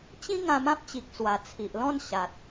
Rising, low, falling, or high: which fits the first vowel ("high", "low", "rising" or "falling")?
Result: high